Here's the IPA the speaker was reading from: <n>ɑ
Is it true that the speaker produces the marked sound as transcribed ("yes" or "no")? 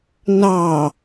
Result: yes